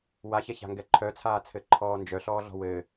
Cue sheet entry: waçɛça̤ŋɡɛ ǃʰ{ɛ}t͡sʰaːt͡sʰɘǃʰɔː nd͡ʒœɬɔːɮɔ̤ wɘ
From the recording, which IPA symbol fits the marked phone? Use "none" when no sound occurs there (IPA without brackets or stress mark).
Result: œ